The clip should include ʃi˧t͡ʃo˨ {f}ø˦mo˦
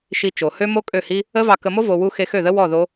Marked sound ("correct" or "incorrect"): incorrect